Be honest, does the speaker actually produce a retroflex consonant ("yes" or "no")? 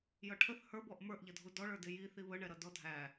yes